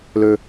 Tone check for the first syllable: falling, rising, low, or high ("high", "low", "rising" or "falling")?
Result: high